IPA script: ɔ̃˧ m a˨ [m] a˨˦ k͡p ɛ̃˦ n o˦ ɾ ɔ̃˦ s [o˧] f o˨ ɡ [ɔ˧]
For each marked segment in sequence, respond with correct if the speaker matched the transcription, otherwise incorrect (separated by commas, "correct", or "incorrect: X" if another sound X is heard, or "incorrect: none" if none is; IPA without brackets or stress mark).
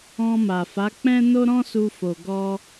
incorrect: f, incorrect: u˧, correct